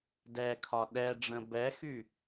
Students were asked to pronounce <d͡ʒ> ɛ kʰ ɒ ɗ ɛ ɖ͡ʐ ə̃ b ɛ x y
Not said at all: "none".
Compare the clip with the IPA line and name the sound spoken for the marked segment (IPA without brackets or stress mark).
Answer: d